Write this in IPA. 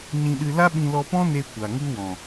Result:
ɲ ĩ˧ ɗ ɨ˧ l a˦ ɓ ĩ˧ l ɔ˧ p ɔ̃˦ n e˧ kʷ a˨ ŋ u˦ w ɔ̃˨

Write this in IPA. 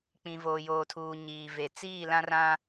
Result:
k͡p ĩ˨ v oː˨ j oː˨ tʰ uː˨ ɲ iː˨ v e˨ t͡s iː˦˨ l ã˦ r ã˦

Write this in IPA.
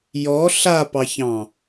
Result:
j ɔ ɬ a p ɑ ç ɑ̃

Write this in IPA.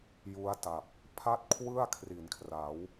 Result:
j u˦˥ a̯ t a˨˩ p̚ | pʰ a˥˩ t̚ kʰ w ɯ˥˩ a̯ kʰ r i˩˦ n kʰ r a˩˦ w

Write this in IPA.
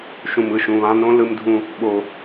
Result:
ʃ ũ˩ m ɯ˩ ʃ ũ˩ β ã˧ n õ˥ l ɯ˧ m dʱ ũ˧ | ɓ o˩

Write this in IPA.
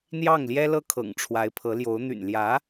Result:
n̪ j ɑ˥˩ ŋ l j ɛ˥ l ɤ˥ kʰ ɤ̰˨˩ ŋ ʈ͡ʂʰ w a˧˥ ɪ̯ pʰ ɤ˧˥ l j o˧˥ ʊ̯ n̪ y̰˨˩ n l j ä˧˥

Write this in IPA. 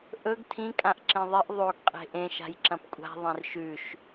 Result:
ʔ ɵ ɡ tʰ ĩ kʼ ã ʔ ǁ ẽ ðˤ i ʔ ðˤ o ɡ qʼ e̤ ʔ ẽ ʃ a̤ j ǁ ɐ̃ p kʷʼ a̤ ðˤ ẽ r ʃ ʉ ʃ

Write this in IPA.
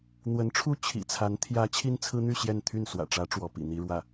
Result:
n̪ w ə˧˥ n ʈ͡ʂʰ u˥ t͡ɕʰ ḭ˨˩ t͡sʰ a˧˥ n t̪ʰ j ä˧˥ t͡ɕʰ i˥ n t͡sʰ ɹ̩˥ n̪ y˥˧ ɕ j ɛ˥˧ n t̪ʰ y˥˩ n s w ä̰˨˩ ʈ͡ʂ ä˧˥ ʈ͡ʂ w ɔ˧˥ p ḭ˨˩ n̪ i˥ ɻ w ä˥˩

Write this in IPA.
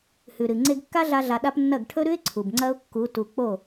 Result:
h ʉ˨ ɾ ɨ˨ ŋ͡ǀ e˧ ɡ kː a˦ ɮ a˦ ɮ a˧ ɗ a˦ p nː ɐ˦˨ ɡ ʈʰ ɵ˦ ɾ ʉ˦ ɪ̯ ǀʰ u˨ b ŋ͡ǀ ɐ˦ ʊ̯ kː u˨˦ t u˨ k͡p o˦˨

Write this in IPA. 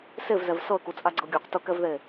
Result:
s e v z ɛ v s ɤ ə̯ k u t͡sʼ a ɡ͡ǀ ɤ ɡʲ ɔ q t ɤ k ɛ v ð e

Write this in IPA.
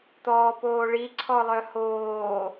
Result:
t̪ ɔː p oː ɭ i ǀʰ ɔ lˠ œ h oː

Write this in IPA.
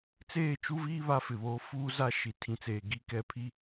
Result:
t͡s eː˦˨ t͡ʃ u˦ v iː˦ β a˦ f ɪ˨ β oː˦ f uː˦ z a˦ ʃ i˨ tʰ ĩ˨ t͡s eː˨ ɡ i˦ k ɛ˦ pʰ i˦

